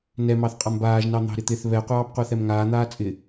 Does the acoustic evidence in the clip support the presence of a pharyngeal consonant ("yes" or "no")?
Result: no